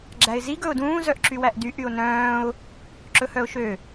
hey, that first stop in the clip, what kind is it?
click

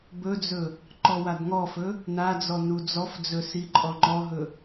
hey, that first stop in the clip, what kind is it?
plain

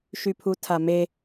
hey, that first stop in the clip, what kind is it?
aspirated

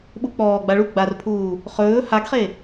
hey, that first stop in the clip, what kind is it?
implosive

